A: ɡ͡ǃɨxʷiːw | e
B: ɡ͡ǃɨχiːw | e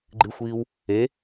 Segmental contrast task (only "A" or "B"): A